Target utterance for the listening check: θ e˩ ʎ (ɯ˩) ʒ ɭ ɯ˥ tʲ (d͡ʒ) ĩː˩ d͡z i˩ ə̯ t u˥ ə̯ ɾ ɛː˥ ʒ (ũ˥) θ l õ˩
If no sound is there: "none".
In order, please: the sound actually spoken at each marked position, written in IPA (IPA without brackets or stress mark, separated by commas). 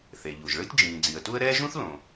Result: u˩, d͡ʒ, ũ˥